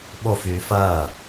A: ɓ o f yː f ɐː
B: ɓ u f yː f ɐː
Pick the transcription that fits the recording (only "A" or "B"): A